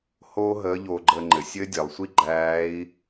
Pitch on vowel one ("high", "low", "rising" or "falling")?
high